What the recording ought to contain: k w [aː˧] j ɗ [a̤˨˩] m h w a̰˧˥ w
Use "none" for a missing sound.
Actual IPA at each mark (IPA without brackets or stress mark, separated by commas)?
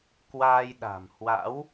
aː˧, a̤˨˩